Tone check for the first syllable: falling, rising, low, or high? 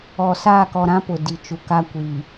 low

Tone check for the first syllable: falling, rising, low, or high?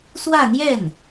falling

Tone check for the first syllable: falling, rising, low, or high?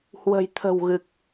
low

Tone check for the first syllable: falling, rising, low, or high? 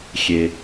low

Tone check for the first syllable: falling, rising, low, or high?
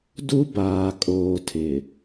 high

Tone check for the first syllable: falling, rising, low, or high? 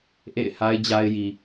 falling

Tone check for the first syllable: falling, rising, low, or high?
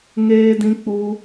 high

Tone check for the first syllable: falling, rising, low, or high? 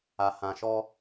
low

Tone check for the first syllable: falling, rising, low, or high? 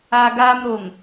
high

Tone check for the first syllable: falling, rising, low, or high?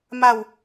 falling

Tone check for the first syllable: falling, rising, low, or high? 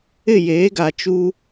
falling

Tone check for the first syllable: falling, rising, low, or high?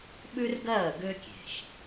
high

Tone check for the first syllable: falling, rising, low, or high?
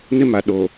high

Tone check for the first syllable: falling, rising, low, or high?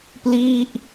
falling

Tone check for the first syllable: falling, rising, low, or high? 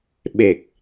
low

